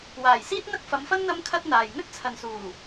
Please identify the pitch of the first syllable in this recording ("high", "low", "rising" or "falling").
low